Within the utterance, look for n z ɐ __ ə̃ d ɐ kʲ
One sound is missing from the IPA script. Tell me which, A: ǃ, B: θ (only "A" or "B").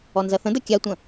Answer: B